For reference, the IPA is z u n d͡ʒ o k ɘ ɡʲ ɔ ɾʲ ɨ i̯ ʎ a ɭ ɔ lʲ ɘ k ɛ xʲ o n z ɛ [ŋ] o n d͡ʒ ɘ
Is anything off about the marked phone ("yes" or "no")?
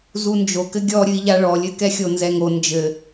no